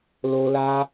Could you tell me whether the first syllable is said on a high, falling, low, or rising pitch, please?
high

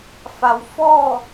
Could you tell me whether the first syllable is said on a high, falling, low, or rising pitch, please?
low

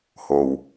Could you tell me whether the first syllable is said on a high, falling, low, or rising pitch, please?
low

